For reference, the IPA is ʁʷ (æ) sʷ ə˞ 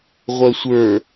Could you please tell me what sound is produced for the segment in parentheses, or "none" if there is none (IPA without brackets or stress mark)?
œ